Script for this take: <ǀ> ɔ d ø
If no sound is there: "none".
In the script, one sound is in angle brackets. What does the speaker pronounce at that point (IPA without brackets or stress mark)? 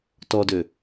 t